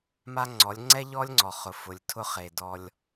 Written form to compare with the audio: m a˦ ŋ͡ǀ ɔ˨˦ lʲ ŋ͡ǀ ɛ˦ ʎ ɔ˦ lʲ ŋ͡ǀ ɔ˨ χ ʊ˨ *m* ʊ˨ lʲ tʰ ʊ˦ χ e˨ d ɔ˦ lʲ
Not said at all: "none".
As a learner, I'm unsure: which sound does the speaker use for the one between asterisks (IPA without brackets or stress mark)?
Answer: f